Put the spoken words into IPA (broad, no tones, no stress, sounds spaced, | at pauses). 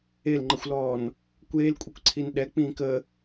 e l ŋ͡ǃ ə xʷ l ɔː n | kʷ eː l kʷʼ i kʷ ǀʰ i n ɗ ɛ k͡p ĩː k ə